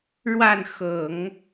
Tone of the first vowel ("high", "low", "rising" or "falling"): falling